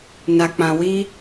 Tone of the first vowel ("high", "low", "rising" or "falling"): low